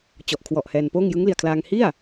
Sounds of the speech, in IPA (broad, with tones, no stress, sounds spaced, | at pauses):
t͡ɕ ɔ˨˩ ʔ kʰ w ɔ˨˩ ʔ h ɛː˧ n p oː˥˩ ŋ j ɯ˦˥ ŋ l i˨˩ a̯ kʰ l aː˧ ŋ h i˥˩ a̯